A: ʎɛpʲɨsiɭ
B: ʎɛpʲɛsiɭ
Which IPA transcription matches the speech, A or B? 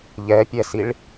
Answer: B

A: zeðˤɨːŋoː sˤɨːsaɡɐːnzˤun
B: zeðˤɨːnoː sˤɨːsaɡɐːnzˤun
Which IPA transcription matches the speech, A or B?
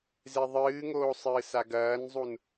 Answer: A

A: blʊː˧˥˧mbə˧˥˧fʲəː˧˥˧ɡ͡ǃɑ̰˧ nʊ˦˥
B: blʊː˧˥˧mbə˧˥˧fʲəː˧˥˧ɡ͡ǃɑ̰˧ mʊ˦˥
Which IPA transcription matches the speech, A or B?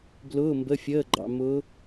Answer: B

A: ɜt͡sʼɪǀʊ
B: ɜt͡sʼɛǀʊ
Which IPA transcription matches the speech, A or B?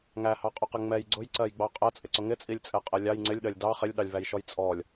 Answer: A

